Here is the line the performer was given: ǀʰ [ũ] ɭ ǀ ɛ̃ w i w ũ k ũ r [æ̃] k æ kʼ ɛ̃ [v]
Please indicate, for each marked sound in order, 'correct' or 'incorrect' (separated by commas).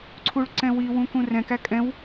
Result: incorrect, incorrect, incorrect